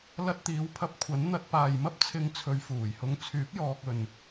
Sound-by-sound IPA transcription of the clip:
l ɐ˧ t̚ t̪ iː˨˧ w pʰ ɐ˧ p̚ kʷʰ ɐ˨˥ n n̪ ɐ˧ t̚ p aː˨ j m ɐ˥ p̚ t͡sʰ ɪ˧ ŋ t͡sʰ ɵ˨˧ ɥ f uː˨˩ j h ʊ˧ ŋ t͡sʰ yː˨˥ p̚ j ɔː˧ k̚ ɵ˨ n

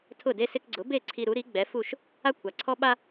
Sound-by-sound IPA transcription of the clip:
tʰ ʊ˥˩ d e˥ s ɪ˧ k ɡ͡ǀ ʊ˩˥ b e˥˩ ǀʰ i˧ ɾ u˩˥ ɾ i˩˥ ɡ͡b ɛ˩˥ f u˥˩ ʃ | a˥ kʷʰ a˩ ǀʰ ɔ˥ ɓ a˥

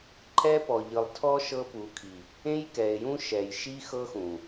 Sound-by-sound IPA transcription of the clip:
ǃʰ ɛ˦ p ɔ˨ ʎ ɯ˨ lˠ tʰ ɔ˦ ʃ ɤ˦ p u˨˦ kʰ i˨ | ẽ˦ j k ɛ˨ e̯ j ũ˦ ʃ ɛ˨ j ʃ i˦ x ɤ˦ x ũ˨

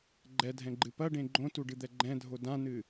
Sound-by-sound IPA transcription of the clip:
ɡ͡ǃ ɛ dʱ ɛ̃ ɡ͡ǃ ɨ p ɐ ɖ ẽ ɡ͡ǃ õ t u ɖ ɨ d̪ ɛ ɡ͡ǃ ɛ̃ dʱ o d ã n ɨ

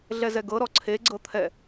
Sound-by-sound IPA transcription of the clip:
ɮ ɛ z ɛ ɡ ɤ ɾ ɔ ǀʰ e ɡ͡ǀ ɤ t̪ʰ ɛ

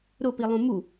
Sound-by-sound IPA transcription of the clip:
ɾ ʊ p i lˠ ũ m u

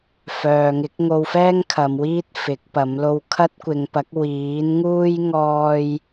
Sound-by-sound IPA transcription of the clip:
f œː˨ ŋ ɪ˨˥ k̚ ŋ o˧ w f ɛː˥ ŋ kʰ ɐ˨˧ m w iː˥ t̚ f ɪ˨˥ k̚ p ɐ˨˥ m l o˧ w kʰ ɐ˥ t̚ kʷ ɪ˨˧ ŋ p ɐ˨˥ k̚ w iː˨˥ n ŋ uː˥ j ŋ ɔː˥ j

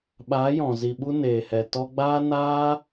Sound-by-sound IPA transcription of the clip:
ɓ aː˨˦ j ɔ̃˨ z i˨ ɓ u˧ n eː˨ h ɛ˨ t ɔ˧ ɡ͡b aː˦ n aː˦

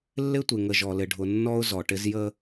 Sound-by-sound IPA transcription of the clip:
lː ɪ˦ tʷ ɪ˨ ŋ ə˨ ʒ ɔ˨ l ɪ˨ ɖʱ ʊ˨ nː ɔ˦ ʊ̯ z ɔ˨ ʈ ɪ˦ z j ə˦

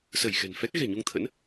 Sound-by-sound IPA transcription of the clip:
s ə˧˩ j x ɛ̤˨˩ n f ɛ˦˥ k̚ ɣ ɛ̤˨˩ ɲ u˧ ŋ t̪ʰ ə̰˧˥ n

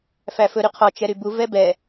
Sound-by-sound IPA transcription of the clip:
f æ f ɵ ɾ y qʰ ɔ t͡ʃ ɛ ɾ y b u v ɛ b ɛ

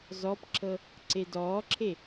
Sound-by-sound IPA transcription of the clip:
z ɔ p ǁ ɤ | ǀ e d ɔː ǁʰ e

